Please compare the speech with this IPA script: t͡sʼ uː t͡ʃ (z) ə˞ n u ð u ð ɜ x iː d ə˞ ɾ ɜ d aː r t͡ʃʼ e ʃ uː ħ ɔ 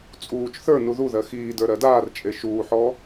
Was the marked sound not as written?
yes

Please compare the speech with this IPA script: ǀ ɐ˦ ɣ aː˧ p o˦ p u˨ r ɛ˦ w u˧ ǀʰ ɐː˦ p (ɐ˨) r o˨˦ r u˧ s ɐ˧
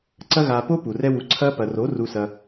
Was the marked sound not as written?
no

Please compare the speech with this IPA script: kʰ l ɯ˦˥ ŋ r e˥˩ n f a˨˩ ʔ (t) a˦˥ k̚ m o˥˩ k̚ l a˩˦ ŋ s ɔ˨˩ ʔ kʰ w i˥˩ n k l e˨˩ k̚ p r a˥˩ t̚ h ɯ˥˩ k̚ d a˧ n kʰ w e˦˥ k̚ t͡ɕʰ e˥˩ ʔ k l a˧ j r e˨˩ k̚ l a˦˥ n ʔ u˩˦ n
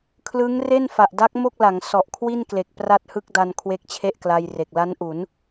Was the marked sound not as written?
yes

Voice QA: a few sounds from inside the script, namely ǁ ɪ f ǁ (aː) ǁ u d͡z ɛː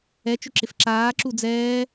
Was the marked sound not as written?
no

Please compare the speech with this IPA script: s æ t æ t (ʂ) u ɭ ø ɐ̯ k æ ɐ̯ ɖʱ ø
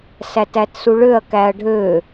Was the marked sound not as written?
yes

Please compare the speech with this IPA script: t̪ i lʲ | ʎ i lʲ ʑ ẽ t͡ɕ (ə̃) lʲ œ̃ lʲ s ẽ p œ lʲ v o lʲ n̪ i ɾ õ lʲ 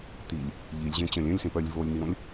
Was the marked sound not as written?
yes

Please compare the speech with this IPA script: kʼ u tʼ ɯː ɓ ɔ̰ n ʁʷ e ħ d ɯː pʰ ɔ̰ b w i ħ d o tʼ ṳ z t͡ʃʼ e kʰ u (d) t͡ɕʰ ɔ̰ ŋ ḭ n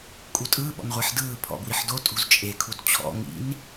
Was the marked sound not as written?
no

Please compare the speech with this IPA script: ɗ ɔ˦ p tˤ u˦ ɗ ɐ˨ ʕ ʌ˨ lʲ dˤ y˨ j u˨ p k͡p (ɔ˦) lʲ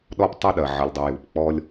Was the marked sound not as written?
no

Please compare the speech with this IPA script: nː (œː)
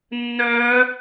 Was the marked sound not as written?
no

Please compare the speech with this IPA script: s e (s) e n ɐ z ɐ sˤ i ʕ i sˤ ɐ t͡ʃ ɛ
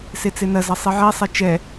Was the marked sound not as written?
yes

